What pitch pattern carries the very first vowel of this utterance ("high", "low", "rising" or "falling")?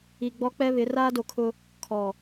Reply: low